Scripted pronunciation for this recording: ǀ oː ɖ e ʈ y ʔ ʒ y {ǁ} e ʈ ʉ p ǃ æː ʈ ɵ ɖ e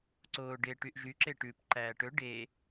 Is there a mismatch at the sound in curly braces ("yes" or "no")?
no